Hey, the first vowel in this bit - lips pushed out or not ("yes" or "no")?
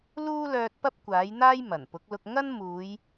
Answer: yes